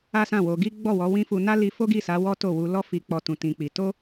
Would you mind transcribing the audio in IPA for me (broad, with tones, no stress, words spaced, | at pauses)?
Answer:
a˦sã˦˨wo˧ ɡi˦ɡ͡bɔ˦˨wɔ˨˦wĩ˦ fu˧na˦li˧ fo˦ɡi˦˨sa˨˦ wɔ˦to˦˨ wu˧lɔ˦fi˧k͡pɔ˧ tũ˧tĩ˧k͡pi˧ to˦